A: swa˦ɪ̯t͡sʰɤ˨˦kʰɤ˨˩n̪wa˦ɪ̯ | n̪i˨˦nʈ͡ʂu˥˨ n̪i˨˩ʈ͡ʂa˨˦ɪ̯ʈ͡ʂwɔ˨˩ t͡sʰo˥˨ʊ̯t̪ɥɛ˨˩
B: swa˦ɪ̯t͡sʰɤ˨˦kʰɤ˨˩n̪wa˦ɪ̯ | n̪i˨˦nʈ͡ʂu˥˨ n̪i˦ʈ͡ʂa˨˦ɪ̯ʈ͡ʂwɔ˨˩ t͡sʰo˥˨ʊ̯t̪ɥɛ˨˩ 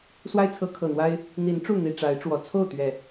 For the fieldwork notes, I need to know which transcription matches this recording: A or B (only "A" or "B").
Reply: A